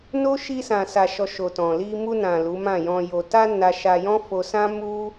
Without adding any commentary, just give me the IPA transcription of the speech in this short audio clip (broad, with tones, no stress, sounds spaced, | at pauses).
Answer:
n o˦ ʃ i˧ s ã˨ s a˨ ʃ ɔ˨ ʃ o˨ t ɔ̃˨ l i˧ m u˧ n ã˨ l u˨˦ m ã˦˨ j ɔ̃˧ j o˧ t a˦ n a˧ ʃ a˧ j ɔ̃˦ f o˧ s ã˦ m u˦